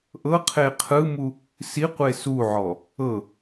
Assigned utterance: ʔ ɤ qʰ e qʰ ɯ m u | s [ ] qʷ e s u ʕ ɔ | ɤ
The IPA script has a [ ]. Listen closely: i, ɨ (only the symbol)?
i